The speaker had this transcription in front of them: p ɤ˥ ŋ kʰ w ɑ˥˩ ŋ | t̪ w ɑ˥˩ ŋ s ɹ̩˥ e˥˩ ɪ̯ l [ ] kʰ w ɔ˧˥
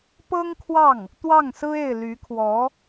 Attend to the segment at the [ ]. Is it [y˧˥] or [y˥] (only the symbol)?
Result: y˧˥